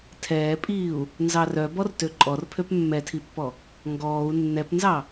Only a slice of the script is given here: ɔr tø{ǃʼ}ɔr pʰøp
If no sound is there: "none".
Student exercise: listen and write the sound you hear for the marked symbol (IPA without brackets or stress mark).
ǃʼ